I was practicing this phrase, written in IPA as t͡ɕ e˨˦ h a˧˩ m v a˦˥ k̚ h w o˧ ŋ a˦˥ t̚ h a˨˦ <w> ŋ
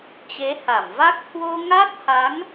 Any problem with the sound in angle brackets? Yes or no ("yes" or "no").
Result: yes